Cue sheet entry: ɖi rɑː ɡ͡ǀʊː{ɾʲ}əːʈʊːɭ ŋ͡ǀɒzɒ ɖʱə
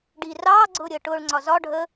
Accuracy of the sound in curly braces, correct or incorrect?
correct